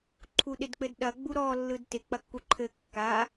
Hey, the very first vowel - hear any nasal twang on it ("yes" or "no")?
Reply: no